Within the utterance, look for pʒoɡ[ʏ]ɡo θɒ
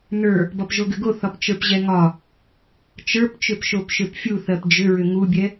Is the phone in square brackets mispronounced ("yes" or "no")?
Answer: no